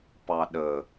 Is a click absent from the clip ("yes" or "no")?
yes